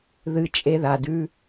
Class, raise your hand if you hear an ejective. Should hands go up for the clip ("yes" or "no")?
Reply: yes